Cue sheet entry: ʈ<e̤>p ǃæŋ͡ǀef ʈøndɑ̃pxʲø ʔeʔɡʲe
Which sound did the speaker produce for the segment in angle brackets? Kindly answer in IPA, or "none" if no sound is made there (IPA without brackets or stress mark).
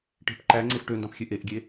e̤